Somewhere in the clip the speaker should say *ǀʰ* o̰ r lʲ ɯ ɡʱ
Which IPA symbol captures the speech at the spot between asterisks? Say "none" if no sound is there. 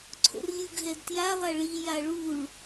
ǀʰ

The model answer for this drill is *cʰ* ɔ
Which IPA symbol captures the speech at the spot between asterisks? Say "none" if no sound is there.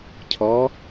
cʰ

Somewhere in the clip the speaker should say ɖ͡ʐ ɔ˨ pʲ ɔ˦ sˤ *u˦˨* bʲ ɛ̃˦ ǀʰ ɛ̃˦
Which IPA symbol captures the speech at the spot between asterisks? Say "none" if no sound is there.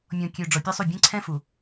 u˦˨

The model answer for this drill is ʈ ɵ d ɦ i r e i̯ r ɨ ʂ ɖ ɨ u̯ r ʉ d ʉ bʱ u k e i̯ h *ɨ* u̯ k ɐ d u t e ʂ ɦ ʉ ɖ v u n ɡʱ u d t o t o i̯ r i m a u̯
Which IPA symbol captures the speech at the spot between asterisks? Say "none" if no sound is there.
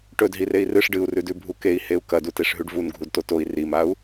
e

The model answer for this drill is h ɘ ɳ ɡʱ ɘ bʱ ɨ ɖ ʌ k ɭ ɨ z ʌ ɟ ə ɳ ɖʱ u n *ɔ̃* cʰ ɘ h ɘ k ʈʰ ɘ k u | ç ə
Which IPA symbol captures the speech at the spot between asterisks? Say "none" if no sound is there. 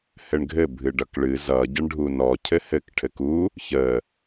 ɔ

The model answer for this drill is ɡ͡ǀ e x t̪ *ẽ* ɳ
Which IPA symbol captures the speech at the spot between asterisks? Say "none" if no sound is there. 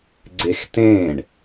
ẽ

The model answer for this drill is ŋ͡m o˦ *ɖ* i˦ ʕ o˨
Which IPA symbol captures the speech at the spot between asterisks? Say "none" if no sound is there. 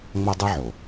dˤ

